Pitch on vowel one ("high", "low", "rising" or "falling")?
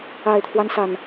low